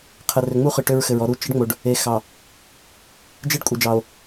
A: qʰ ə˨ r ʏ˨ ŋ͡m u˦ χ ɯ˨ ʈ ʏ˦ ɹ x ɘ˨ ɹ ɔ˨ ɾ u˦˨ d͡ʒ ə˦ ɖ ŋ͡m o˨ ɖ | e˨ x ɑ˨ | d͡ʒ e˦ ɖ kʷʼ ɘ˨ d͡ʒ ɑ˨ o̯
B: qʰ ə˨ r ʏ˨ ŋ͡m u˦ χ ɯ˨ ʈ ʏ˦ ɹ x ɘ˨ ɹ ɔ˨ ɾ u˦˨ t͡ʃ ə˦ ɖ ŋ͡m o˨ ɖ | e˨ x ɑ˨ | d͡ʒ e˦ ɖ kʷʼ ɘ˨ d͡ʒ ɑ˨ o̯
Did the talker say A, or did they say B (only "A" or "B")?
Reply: B